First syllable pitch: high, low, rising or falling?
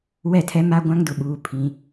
falling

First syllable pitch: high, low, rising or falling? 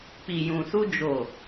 low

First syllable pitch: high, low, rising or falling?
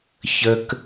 high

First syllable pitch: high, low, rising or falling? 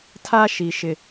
high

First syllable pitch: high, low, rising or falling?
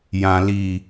low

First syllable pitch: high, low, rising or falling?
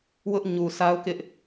high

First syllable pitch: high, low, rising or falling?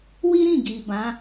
high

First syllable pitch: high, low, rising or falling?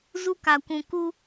high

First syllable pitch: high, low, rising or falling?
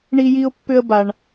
high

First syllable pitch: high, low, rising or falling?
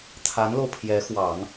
rising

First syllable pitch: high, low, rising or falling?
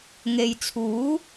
low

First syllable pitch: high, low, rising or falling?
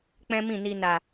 high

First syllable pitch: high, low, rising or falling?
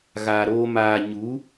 low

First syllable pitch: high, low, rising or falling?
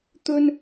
high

